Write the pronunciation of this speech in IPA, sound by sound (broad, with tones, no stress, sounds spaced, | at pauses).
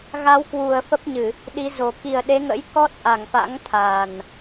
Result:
ɣ a˨˦ w k w u˨˩ ə̯ f ə˦˥ p̚ ɲ ɨ˧˩˨ | ɗ i˨˦ z o˨˩ k i˨˩ ə̯ ɗ e˨˦ ŋ ə̰˧˥ j k ɔ˦˥ t̚ ʔ a˧˩ ŋ f a̰˧˥ ŋ t̪ʰ a˨˩ n